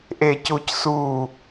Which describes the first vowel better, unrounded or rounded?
unrounded